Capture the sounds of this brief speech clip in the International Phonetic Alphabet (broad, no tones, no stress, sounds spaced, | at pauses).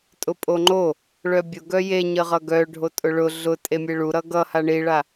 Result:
tʼ ʊ pʼ o ŋ͡ǃ o | ɭ œ bʲ ʊ ɡ œ j e ɲ ə ʁ ʌ ɡ œ ɖʱ o tʼ ʊ ɭ ʊ ɮ ʊ tʼ e mʲ e ɭ u ɾ ʌ ɡ ʌ h a ɳ i ɭ a